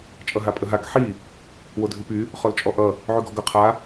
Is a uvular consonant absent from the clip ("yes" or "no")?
no